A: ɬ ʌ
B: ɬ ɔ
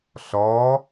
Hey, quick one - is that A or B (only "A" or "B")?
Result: B